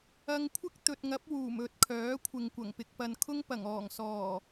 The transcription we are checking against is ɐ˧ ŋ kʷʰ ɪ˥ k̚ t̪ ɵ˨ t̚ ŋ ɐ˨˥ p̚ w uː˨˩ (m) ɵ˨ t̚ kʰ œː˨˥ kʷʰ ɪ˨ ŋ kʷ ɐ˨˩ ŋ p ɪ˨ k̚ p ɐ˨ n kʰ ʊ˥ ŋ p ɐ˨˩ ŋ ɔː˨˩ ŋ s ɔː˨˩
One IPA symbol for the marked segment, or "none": m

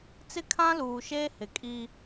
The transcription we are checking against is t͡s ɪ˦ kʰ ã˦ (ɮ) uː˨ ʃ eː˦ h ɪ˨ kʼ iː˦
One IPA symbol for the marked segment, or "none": l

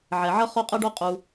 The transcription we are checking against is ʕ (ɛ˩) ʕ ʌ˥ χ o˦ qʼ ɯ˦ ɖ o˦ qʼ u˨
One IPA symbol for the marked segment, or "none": ɛ˩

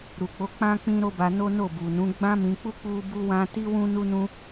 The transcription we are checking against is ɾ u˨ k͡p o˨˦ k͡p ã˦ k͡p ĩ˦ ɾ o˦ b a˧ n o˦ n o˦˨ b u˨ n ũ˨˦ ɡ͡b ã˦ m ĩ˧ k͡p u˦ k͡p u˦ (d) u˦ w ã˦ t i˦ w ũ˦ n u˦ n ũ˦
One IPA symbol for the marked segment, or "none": b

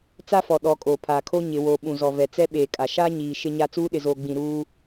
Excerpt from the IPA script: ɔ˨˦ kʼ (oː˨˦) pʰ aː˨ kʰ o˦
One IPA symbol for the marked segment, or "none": oː˨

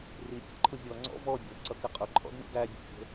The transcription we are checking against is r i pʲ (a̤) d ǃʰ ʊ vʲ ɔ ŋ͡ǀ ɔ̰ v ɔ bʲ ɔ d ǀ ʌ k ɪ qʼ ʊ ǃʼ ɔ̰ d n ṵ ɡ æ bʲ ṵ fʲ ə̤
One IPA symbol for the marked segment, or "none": ə̤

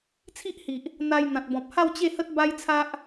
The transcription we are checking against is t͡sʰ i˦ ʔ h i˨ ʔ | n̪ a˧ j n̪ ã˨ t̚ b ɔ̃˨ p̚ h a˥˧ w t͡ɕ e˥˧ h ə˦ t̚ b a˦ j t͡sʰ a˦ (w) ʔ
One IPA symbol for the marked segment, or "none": none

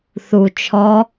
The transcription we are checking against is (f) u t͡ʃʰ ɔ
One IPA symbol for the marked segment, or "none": θ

